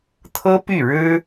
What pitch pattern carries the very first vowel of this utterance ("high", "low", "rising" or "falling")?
high